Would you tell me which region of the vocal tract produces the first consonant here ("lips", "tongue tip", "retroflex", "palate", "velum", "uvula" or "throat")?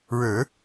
retroflex